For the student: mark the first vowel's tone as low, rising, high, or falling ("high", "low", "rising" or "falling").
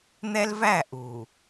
high